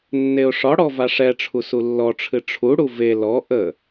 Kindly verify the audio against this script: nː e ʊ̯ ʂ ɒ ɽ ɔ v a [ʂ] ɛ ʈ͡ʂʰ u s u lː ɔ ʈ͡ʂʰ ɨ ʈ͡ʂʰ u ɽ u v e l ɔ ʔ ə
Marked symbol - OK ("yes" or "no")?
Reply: yes